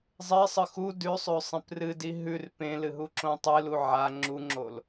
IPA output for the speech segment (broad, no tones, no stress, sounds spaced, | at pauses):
zˤ e sˤ ɨ x u d ʉ sˤ ʉ sˤ ẽ p r ɨ d i ɦ ʉ r p ẽ l ɨ ɦ u ǁ õ tˤ ɨ l u ʕ a ŋ͡ǁ u ŋ͡ǁ o l